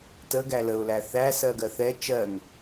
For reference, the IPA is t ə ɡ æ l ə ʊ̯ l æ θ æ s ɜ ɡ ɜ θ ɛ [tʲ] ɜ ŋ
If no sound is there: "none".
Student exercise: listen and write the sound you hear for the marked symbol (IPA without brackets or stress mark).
t͡ʃ